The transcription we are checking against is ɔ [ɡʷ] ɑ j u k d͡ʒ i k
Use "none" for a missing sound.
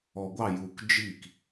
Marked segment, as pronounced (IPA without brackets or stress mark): ɡʷ